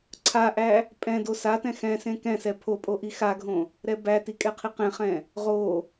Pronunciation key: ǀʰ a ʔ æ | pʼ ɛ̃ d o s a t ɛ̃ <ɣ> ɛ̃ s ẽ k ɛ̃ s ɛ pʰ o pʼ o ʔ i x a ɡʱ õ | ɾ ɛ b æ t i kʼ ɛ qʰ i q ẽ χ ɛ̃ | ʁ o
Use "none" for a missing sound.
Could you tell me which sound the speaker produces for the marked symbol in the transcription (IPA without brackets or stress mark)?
x